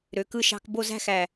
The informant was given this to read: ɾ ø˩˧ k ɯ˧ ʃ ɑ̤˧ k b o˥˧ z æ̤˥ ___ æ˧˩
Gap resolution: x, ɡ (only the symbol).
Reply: x